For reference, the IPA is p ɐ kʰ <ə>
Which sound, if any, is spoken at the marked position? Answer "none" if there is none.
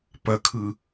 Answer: ɯ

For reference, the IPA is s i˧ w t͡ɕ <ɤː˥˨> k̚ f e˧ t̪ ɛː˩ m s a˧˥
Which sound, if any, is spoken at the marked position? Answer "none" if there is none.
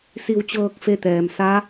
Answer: ɤː˧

